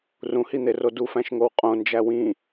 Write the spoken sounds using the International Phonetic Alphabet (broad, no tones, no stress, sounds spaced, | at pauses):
r ũ h i n̪ e r o d u f æ̃ ʃ ŋ o w qʼ õ n d͡ʒ æ w ĩ